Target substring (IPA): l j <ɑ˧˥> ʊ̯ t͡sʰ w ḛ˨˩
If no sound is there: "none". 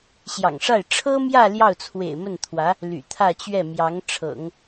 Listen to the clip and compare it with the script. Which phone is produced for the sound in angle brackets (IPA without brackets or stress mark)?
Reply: ɑ˥˩